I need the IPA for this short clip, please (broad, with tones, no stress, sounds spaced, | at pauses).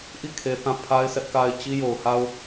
ʔ i˦˨ kʰ e˨ θ ã˦˨ pʰ a˦ ɪ̯ sʰ ɛ˦ ʔ k a˦ ɪ̯ t͡ɕ i˦ j o˨ ʊ̯ h a˦ ʊ̯